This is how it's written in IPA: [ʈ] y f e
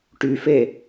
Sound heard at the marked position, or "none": ʈ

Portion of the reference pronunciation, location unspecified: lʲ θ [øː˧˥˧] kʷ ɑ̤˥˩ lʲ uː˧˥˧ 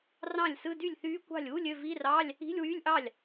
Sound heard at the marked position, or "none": yː˧˥˧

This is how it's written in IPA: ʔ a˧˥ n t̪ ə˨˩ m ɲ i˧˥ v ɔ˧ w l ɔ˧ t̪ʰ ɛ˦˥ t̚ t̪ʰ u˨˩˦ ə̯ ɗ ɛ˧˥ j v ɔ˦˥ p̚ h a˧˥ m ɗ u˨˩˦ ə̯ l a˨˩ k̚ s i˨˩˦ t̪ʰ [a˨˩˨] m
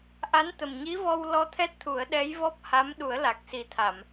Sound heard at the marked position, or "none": a˨˩˨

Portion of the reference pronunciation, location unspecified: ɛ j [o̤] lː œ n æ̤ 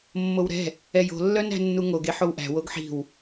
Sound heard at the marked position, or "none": o̤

